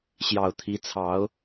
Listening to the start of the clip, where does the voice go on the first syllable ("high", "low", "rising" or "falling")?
low